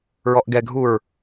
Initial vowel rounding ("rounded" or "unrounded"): rounded